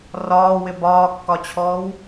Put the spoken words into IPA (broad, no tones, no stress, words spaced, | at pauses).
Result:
rɒːwɪ bɒːkːɒt͡ɕʰɔːw